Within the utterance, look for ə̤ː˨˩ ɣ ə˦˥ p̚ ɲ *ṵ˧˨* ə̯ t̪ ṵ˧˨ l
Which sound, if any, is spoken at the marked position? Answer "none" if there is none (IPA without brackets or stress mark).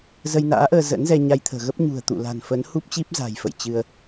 ṳ˨˩